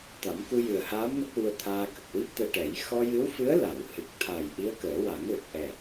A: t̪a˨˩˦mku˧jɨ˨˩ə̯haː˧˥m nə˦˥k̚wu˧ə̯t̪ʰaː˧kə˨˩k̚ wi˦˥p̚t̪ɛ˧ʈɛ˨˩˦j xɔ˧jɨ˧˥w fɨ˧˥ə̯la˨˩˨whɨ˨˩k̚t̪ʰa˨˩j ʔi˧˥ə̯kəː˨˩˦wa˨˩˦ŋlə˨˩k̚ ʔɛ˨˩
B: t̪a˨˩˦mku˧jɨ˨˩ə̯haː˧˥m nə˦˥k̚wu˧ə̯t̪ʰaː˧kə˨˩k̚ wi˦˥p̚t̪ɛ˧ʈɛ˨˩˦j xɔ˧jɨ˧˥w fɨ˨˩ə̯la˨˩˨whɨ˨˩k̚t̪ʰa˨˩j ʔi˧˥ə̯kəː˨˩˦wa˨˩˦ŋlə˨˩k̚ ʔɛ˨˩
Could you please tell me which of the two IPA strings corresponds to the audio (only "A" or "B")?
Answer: A